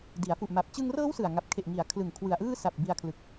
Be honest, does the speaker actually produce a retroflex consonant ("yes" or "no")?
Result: no